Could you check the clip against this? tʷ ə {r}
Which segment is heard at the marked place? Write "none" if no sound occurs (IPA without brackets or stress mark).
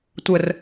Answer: r